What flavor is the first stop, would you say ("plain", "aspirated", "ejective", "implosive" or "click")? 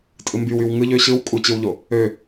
ejective